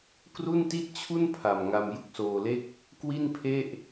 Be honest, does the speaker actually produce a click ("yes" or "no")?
no